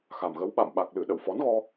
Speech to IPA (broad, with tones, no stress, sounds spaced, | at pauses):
x a˨˩ m ɣ ə˨˦ w ɓ a̰˧˨ m ɓ a˨˩ k̚ l ɨ˧˩ ɗ ə̰˧˨ w f ɔ˨˦ n ɣ ɔ˧